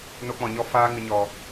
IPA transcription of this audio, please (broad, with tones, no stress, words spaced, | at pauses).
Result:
no˧k͡pɔ̃˨ɲɔ˧ faː˧ ŋɨ˨ɲɔ˨